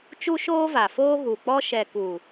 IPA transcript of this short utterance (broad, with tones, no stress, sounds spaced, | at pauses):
t͡ʃ u˦ ʃ oː˦ v a˨ f oː˦ ɣ u˨ k͡p ɔ˦ ʃ ɛ˨ k u˨